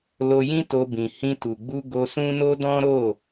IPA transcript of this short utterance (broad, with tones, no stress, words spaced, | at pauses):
lo˧jĩ˦to˧ bĩ˨hĩ˧ tu˨ɡ͡bu˧ ɡo˧sũ˦no˦ dɔ̃˦ ɾo˦˨